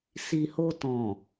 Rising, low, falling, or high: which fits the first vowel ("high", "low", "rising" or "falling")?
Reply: low